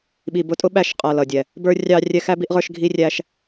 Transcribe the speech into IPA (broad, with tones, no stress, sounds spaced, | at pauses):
ɓ i˨ b ʊ˧ tʼ ʊ˦ ɓ æ˧ ʃ qʼ ʌ˨ l ʌ˨ dʲ ɛ˨ | b ə˞˦ rʲ ɑ˦ rʲ ɛ˧ x æ˦ b i˦ ʔ ʁ ə˞˦ ʃ ɡʱ i˦ rʲ æ˦ ʃ